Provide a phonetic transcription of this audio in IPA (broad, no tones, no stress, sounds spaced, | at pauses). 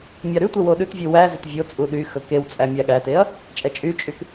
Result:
mʲ ɑ ɾ ʉ tʷ ɛ w o ɗ ʉ t vʲ ʉ w æ z ɵ t vʲ o t͡sʼ u ɗ y x ɵ k e w t͡sʼ æ mʲ æ ɠ æ t e ɐ̯ | t͡ʃʼ ɛ t͡ʃʼ y t͡ʃʼ y k